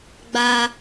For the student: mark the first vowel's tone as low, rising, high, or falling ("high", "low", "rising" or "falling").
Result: high